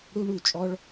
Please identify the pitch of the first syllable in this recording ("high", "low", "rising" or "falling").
high